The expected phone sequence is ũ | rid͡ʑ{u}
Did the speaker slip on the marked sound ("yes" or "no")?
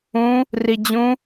yes